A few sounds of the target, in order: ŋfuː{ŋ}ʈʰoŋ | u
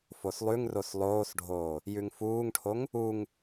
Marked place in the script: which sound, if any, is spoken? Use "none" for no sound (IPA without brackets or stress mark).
ŋ